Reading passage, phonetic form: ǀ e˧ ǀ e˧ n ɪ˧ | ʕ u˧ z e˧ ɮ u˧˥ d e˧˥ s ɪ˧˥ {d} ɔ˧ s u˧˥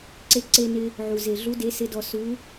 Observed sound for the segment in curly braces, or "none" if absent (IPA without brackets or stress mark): d